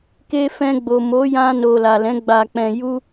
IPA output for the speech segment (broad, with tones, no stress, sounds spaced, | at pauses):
k e˧ f ɛ̃˧ ɡ͡b o˨ m o˨˦ j ã˧ n o˨ l a˨ l ɛ̃˨˦ ɡ͡b a˧ k͡p ɛ̃˧ j u˦